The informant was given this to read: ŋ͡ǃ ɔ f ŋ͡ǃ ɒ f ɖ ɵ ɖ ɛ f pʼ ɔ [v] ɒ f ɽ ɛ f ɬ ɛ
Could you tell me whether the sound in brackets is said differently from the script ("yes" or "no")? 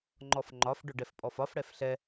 yes